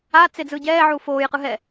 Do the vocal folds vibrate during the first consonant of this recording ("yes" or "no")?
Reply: no